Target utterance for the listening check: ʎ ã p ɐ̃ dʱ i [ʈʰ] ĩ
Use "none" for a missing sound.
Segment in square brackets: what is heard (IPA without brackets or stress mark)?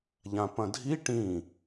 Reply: ʈ